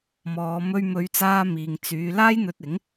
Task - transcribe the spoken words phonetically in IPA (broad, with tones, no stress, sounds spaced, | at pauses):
m ɔː˨˧ m ɵ˧ ɥ m ɵ˨˧ ɥ t͡s aː˧ m iː˨ ŋ t͡s yː˨˧ l aː˥ j n̪ ɵ˧ t̚ ɪ˨˥ ŋ